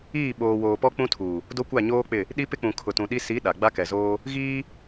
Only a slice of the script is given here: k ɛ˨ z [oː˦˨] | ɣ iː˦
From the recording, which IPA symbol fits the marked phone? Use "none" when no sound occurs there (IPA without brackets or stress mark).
oː˦